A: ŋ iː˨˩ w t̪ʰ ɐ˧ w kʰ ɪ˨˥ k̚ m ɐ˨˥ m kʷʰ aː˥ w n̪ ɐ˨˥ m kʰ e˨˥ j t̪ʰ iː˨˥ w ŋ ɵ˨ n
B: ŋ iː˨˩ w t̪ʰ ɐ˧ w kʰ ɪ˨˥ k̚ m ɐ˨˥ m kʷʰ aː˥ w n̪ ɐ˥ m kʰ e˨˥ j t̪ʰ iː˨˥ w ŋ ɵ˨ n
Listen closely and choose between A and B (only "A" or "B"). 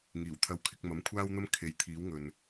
B